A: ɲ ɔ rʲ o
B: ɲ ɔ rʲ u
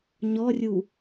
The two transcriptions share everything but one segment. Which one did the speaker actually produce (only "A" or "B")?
B